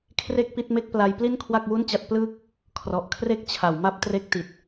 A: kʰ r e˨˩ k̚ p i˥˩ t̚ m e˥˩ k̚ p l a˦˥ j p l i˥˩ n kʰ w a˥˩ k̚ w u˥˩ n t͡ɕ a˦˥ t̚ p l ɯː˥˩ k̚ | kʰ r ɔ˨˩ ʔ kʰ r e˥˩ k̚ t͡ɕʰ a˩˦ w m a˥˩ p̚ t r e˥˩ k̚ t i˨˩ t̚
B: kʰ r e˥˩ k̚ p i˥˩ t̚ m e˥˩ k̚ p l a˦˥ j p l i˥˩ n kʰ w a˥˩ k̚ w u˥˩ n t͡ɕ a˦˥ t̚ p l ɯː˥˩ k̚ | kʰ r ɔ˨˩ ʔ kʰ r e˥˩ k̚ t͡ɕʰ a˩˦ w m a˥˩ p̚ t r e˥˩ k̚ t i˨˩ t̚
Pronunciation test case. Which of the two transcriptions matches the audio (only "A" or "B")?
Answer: B